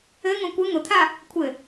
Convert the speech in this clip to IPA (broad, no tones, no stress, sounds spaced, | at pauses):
ɘ ŋ õ kʷ ɘ ŋ ʊ t̪ʰ a | kʷʰ ɘ